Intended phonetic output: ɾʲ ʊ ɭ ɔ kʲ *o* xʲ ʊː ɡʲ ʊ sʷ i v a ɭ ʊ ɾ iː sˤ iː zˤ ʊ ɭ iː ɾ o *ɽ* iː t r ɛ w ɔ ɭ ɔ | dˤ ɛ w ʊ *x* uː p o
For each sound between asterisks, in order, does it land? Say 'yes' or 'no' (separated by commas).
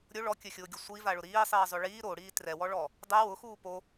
no, yes, yes